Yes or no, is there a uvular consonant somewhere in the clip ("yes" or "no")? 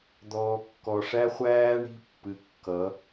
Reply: yes